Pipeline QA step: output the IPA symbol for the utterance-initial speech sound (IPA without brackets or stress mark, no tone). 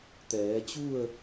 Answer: t̪